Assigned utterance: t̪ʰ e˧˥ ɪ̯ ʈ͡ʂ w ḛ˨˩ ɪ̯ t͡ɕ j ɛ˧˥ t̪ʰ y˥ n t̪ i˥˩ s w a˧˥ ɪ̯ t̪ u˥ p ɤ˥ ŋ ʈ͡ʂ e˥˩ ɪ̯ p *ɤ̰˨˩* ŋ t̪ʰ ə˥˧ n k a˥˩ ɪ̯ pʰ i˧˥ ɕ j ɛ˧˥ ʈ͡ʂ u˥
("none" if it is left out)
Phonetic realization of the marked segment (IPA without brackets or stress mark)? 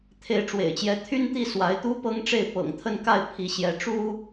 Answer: ɤ̰˨˩